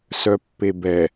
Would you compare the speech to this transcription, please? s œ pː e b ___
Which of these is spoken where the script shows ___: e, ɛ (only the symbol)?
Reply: ɛ